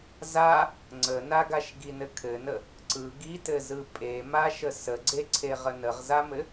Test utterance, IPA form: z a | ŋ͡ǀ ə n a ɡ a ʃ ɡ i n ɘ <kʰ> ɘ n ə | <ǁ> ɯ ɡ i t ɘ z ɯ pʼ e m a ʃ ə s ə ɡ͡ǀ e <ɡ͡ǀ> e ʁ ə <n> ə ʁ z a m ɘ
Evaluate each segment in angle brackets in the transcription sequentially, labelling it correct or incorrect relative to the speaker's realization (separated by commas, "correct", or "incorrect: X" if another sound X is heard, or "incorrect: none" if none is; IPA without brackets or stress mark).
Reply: correct, incorrect: ǀ, incorrect: ǀʰ, correct